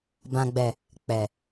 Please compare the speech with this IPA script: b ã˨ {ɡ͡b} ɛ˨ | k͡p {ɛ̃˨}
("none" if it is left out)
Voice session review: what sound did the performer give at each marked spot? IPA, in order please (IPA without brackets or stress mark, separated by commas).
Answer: ɡ͡b, ɛ˨